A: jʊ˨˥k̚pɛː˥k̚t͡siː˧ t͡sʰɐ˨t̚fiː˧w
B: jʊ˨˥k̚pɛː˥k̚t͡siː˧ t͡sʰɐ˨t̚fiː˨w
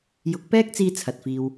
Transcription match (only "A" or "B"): B